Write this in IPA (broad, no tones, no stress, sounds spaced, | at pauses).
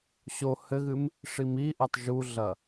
ɕ o h ɘ ɣ ɨ m | ʂ i m i ʔ ɐ tˤ ʒ u ɮ ɐ